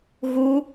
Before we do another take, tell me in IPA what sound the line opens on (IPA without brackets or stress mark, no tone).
ɣ